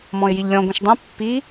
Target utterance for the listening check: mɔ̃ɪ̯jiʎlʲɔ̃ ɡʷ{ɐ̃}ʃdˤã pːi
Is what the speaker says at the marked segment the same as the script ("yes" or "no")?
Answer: yes